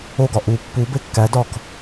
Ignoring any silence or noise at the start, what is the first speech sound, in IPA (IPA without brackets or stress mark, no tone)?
o